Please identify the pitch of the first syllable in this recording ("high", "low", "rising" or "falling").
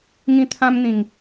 high